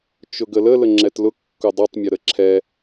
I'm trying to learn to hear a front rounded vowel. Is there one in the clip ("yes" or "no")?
no